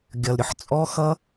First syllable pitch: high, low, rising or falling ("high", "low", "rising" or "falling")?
low